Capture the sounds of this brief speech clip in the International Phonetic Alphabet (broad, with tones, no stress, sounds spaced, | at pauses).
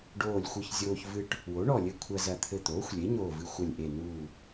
ɖ oː˧˩ lʲ xʷ ɨ˧˩ ç zʲ oː˧ ç v ɨ˧ ʈ | w o˩˥ ɳ ɔ˧˩ lʲ ɘ˧˩ kʷʰ ɐ˧ z ɐ˧˩ t̪ʰ ɘ˧˩ t̪ oː˩˥ xʷ lʲ e˩˥ ɲ oː˧˩ v ɨ˧˩ xʷ ɐ˧˩ lʲ ʔ e˧˩ n uː˧˩